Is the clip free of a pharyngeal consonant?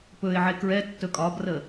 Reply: no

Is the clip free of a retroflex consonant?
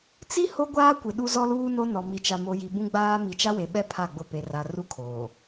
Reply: yes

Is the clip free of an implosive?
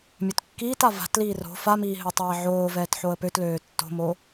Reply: yes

